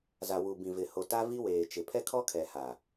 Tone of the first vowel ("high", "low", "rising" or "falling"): low